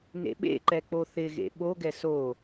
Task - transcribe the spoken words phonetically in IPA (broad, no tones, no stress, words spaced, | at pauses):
nḛɓḛǃɛ k͡poθɪɣḛ ɓoɡɛ so